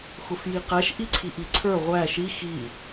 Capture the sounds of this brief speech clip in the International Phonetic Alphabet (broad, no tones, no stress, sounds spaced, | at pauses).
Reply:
x ʊ f j i q æ ʃ ʔ i ǀʰ i ʔ i ǀʰ ə˞ ʁʷ æ ʃ i x i